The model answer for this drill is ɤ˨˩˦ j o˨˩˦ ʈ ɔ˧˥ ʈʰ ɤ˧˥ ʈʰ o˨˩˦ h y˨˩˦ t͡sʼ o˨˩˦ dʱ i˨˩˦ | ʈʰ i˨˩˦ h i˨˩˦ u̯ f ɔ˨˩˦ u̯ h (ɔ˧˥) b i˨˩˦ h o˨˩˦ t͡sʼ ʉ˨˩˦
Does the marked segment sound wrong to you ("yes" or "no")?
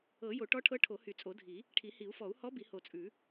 no